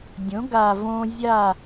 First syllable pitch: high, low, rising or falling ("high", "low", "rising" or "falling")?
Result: rising